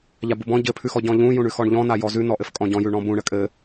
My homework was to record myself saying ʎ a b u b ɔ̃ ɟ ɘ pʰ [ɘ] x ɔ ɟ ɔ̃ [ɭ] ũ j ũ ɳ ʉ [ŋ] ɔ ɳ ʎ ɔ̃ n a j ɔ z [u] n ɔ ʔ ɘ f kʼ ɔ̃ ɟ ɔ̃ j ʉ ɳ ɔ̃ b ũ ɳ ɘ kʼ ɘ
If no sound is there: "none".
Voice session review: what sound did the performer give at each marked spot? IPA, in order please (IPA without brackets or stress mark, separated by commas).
ʉ, ʎ, x, ʉ